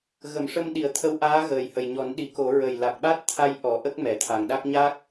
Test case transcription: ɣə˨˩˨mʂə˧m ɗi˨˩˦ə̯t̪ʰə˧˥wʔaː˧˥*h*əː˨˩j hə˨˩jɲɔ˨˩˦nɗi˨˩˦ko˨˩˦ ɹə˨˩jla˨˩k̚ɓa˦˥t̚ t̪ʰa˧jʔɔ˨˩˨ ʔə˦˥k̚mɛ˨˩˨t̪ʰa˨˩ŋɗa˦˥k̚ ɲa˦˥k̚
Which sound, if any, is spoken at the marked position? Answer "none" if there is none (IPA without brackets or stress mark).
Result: ɣ